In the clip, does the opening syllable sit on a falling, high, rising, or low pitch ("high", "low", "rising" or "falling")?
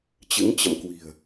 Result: rising